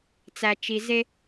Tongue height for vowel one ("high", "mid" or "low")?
low